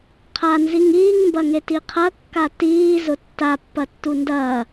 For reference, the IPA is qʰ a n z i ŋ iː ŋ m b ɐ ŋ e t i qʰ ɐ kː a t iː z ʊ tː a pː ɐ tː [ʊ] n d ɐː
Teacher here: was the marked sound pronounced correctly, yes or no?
no